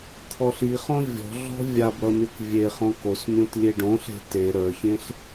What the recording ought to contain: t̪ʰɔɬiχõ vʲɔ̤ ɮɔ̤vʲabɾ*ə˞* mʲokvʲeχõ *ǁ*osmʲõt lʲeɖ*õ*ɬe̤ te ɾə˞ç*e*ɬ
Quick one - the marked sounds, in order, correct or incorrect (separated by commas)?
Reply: incorrect, incorrect, correct, incorrect